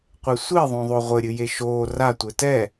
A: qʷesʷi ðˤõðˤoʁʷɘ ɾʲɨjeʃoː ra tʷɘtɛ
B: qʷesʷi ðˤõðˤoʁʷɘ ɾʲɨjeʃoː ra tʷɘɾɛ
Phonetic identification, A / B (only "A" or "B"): A